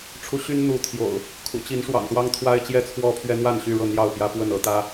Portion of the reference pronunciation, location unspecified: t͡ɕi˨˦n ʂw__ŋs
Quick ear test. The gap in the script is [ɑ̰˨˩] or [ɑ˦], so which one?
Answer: ɑ̰˨˩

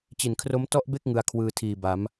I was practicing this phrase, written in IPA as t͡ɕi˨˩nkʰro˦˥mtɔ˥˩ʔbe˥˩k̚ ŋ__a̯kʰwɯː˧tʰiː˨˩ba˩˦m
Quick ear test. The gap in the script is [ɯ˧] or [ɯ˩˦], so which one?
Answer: ɯ˧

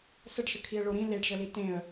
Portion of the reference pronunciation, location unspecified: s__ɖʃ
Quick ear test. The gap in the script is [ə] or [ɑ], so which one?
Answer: ə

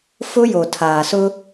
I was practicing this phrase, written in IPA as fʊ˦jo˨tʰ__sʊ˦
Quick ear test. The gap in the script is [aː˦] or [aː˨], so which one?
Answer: aː˨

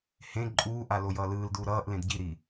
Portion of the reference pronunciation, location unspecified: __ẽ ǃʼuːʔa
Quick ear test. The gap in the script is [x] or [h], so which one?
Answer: h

